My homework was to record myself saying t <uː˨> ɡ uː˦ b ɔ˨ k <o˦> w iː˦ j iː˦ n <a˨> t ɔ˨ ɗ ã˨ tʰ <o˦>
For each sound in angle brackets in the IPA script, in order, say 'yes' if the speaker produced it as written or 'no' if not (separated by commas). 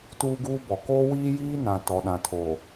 no, no, no, no